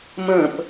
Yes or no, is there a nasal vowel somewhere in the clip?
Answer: yes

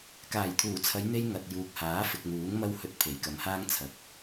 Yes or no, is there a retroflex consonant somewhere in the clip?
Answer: no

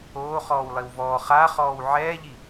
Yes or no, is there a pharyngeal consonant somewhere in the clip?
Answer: yes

